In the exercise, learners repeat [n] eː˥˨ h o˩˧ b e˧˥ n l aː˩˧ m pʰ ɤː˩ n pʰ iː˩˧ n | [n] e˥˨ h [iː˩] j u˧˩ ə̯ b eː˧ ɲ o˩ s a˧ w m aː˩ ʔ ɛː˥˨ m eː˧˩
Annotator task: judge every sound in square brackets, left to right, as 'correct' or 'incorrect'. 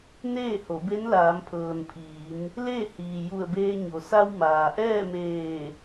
correct, incorrect: l, correct

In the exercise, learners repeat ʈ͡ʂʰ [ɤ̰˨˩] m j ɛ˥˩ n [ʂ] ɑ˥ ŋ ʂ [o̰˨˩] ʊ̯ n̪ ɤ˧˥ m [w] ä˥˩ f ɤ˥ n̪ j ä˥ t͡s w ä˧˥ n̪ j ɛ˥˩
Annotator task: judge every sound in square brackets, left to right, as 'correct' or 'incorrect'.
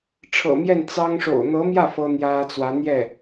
correct, incorrect: t͡s, correct, incorrect: j

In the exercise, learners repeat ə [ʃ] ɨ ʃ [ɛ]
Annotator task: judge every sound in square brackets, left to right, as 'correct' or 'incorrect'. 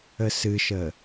incorrect: s, incorrect: ə

